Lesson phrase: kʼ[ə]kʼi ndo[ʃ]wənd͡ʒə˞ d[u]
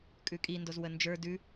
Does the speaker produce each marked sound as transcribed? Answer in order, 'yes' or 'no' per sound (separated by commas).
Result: no, no, no